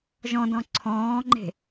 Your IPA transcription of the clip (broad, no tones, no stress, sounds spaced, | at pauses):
ʒ ɔ̃ d ɔ̃ ǀʰ ɔ̃ː ŋ͡ǃ e̤